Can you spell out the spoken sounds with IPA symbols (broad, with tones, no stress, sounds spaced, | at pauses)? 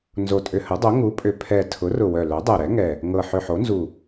n z o˨˩ tʼ ʏ˨˩ h ə˩˥ dˤ o˩˥ ŋ u˩˥ pʼ ʏ˨˩ pʰ ɛ˨˩ tʰ ʊ˩˥ r ʊ˨˩ w œ˨˩ l œ˩˥ dˤ ɛ˨˩ ɾ ɛ˩˥ ŋ ɛ˨˩ | ŋ ɤ˨˩ ħ ʏ˨˩ ħ o˩˥ n z u˨˩